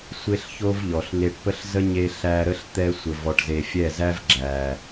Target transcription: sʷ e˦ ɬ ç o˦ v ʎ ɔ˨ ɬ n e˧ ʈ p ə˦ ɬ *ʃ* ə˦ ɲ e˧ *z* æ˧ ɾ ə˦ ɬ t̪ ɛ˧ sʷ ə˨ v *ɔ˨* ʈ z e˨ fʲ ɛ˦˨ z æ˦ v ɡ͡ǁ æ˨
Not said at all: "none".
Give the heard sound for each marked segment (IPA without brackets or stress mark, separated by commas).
z, ɬ, ɔ˨